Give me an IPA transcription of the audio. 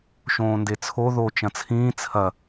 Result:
ʃ õː n d e t͡sʰ o ð o t͡ʃ ɐ̃ t͡sʰ ĩː t͡sʰ ɐ

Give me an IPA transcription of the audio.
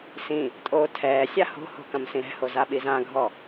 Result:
s ĩ | tʼ oː tʰ ɛː sʲ a h o̤ h o̤ k ɐ̃ m s ĩ ɾ ɛ̤ h o z a ɓ i z ã ɡʱ ɔ

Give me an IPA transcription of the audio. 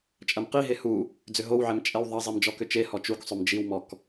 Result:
t͡ʃʼ ɐ m q i ɦ e h u | d͡z ʏ ɦ o w ʕ ɛ m t͡ʃʼ ɛ w ðˤ ɐ zˤ i m d͡ʒ ɔ k ʏ t͡ʃ e h ɔ t͡ʃ u k sˤ ʏ m d͡ʒ i w m ɔ k

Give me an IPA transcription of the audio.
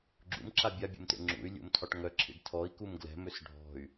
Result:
ɡ͡ǁ ṵ m ǁ a bʲ a bʲ ṵ m t ḛ ŋ͡ǁ ṵ y̯ lʲ ṵ m tʰ ɒ ʈ ŋ œ ǁʰ ḭ ɖ tʰ ɔ i̯ k u m ɡ l ɛ̤ m ø s ɖʱ ɔ̤ y̯

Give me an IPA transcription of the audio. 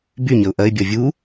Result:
b y ɲ ə ʊ̯ ʔ ɐ ɪ̯ bʲ ɔ vʲ u

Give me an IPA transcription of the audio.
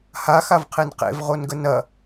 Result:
h a x a v qʰ e n q ḛ v ʁ o n ɡ ə n ɐ

